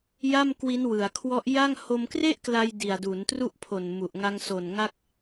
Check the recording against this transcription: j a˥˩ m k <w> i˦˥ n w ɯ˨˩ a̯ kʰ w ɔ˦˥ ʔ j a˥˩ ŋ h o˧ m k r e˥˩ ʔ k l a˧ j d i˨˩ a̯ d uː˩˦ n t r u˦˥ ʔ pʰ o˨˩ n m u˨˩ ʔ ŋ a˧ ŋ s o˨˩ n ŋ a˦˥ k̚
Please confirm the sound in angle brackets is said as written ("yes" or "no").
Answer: yes